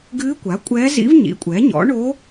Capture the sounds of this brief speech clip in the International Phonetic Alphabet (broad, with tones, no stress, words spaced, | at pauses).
ɡɨː˧˥kʷa˩˥kʷʼɛː˧˥zḭ˧˥v ɲḭ˩˥kʷʼɛ˩˥ɲɔ̰˩˥ɳo˧˥